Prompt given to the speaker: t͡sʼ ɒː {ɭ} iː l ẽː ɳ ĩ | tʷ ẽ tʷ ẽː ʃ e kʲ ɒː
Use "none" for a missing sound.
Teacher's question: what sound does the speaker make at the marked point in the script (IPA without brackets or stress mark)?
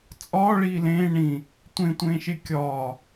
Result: ɭ